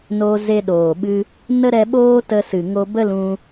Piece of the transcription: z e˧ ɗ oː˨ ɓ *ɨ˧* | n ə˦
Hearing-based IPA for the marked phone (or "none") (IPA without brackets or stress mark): ɨ˧